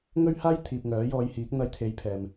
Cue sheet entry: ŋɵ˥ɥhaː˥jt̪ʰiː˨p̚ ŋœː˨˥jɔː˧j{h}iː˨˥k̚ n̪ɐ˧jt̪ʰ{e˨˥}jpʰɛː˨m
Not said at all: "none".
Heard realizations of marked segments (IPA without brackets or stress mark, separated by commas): h, e˨˥